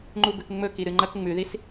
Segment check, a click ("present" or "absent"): present